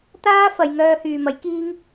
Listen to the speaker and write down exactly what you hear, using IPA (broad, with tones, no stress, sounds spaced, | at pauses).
t̪ aː˥ f ɐ˨˧ j ŋ œː˧ h yː˨ m ɐ˨˥ j k iː˥ ŋ